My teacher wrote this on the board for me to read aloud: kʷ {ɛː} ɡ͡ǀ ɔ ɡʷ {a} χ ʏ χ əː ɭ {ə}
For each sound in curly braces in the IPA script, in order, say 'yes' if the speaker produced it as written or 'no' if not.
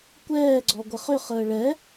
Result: yes, no, no

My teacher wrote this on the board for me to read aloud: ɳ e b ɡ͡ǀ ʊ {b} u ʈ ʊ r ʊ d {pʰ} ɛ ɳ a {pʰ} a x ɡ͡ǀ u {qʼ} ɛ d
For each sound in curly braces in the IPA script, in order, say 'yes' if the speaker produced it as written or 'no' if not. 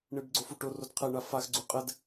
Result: no, no, no, yes

